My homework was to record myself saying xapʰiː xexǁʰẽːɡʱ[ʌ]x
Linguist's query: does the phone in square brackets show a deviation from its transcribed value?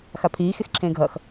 no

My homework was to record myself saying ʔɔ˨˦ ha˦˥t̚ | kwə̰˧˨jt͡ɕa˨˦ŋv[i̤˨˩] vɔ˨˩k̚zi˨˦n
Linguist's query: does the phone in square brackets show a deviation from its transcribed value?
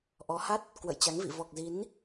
yes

